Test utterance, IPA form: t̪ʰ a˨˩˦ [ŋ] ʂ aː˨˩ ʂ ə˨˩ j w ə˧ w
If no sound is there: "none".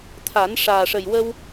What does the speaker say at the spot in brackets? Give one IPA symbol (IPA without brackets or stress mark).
n